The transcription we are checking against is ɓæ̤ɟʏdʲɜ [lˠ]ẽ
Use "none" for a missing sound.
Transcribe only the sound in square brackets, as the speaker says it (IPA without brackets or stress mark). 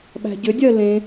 l